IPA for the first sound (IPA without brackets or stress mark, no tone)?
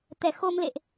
t̪